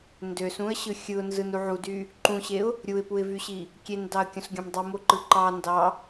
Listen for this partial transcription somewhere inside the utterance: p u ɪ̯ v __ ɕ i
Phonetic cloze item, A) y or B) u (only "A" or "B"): A